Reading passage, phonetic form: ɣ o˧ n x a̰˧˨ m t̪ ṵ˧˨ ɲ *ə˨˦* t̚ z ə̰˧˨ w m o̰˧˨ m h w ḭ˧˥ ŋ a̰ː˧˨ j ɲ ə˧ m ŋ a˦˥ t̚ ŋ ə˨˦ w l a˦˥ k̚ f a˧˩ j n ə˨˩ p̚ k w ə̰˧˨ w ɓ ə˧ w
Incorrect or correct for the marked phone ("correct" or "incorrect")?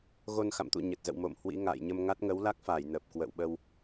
incorrect